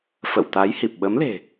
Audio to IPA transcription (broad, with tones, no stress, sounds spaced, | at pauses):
f ə̰˧˨ w t̪ a˨˦ j h i˨˩ p̚ ɓ ə˨˦ m l e̤˨˩